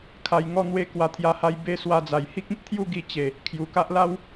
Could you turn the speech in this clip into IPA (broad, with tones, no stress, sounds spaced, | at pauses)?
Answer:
kʰ a˧ j ŋ ɔ˥˧ n̪ w e˦ k w a˧ t̪ʰ j a˧ h a˧ j b e˦ s w a˧ d͡z a˨˩ j h i˦ k̚ ĩ˦ p̚ t̪ʰ j u˥˧ ɡ i˧ t͡ɕ e˨˩ | kʰ j u˨˩ k a˦ ʔ l a˦ w